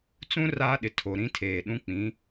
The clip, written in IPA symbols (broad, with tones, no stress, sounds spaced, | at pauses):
t͡s ũ˦ r aː˦ ɗ ɪ˨ tʰ o˨ ɾ ĩ˦ tʰ eː˨ ɗ ũ˦ k͡p ĩ˨˦